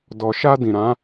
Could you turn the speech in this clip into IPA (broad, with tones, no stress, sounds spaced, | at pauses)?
d ɔ˨ ʃ a˧ d ĩ˨ ɾ ã˨˦